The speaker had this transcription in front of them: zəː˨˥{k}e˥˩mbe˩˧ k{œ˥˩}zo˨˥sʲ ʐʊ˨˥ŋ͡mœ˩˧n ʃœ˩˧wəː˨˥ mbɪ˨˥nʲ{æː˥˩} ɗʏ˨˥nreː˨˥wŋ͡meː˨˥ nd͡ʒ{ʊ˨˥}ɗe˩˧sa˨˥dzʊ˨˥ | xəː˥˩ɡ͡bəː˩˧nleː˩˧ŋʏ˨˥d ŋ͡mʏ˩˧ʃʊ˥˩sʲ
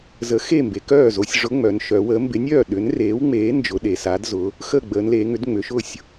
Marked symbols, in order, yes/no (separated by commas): no, no, no, yes